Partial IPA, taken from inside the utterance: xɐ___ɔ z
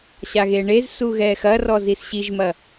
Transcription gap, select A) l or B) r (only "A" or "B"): B